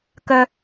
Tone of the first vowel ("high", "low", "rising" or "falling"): low